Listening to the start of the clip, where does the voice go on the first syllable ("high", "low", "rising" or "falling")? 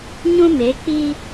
high